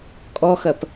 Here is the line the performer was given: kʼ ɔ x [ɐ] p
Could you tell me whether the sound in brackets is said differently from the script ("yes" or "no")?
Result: no